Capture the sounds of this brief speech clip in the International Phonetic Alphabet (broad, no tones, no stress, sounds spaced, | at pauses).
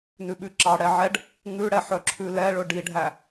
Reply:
n ʉ ɓ ʉ ǁ ɑ ɽ ɛ ʕ ɛ ɖ | ŋ ʉ ɽ ɛ ħ œ ǁʰ ʉ l ɛ ɭ ɵ ɖ i ɖʱ æ